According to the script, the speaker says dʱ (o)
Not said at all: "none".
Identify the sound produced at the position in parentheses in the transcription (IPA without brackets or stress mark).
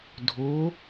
o